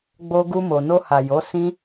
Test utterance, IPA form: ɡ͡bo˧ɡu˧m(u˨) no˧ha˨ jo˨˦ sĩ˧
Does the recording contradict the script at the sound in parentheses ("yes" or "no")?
yes